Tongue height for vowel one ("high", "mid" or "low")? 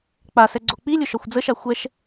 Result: low